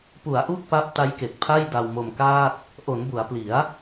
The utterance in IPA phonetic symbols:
p u˩˦ a̯ ʔ u˦˥ k̚ p a˦˥ p̚ t a˦˥ j k e˨˩ k̚ pʰ a˥˩ j d a˧ w m o˧ m k aː˥˩ t̚ | ʔ o˩˦ n b u˩˦ a̯ p l i˩˦ a̯

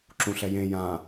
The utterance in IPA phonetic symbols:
ǁ ũ ɬ ɛ j ẽ j ã

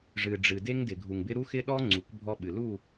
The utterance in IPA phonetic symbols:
ʐ ɨ˨ ɖ͡ʐ ɨ˨ d e˦ ŋ d ɪ˨ ɡʱ u˨ ŋ b ɪ˦ ɾ u˦ x ɪ˦ ɗ ɔ˦ ŋ͡ǀ u˨˦ k bʱ ɔ˦ ɓ ɨ˨ l u˦˨

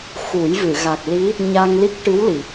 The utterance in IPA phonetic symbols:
x u˨˩˦ j v ɨ˨˩˨ ɣ a˨˩ k̚ l i˧˥ | ɲ a˧ ŋ l i˦˥ k̚ ʈ ɨ˧˥ w l i˨˩˨

